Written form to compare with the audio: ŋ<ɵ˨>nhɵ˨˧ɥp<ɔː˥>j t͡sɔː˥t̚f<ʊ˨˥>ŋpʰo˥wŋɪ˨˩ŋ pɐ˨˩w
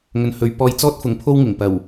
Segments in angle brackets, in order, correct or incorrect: correct, incorrect: ɔː˧, incorrect: ʊ˨

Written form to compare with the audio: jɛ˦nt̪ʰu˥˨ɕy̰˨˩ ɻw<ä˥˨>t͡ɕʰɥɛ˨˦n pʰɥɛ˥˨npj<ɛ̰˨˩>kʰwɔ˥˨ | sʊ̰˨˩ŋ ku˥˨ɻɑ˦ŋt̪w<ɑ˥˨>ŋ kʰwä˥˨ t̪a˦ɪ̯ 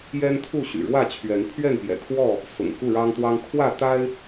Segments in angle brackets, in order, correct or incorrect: correct, correct, incorrect: ɑ˦

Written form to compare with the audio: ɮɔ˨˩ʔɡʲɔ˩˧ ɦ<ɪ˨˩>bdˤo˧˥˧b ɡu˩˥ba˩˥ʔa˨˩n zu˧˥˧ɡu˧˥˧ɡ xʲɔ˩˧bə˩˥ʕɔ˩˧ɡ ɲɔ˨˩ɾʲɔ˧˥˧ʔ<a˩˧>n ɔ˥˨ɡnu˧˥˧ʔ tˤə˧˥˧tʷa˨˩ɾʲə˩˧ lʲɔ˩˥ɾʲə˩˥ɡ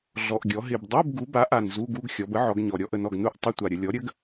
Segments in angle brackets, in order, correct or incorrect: correct, incorrect: ə˩˧

